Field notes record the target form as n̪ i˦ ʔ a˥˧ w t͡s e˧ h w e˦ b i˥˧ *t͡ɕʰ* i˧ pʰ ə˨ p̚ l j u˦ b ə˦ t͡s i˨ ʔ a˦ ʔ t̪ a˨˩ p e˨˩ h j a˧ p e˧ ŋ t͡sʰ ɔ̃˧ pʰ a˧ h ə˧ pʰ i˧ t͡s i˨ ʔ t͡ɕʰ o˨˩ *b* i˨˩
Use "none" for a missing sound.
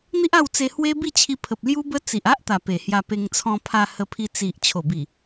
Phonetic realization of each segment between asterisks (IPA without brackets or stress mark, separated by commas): t͡ɕʰ, b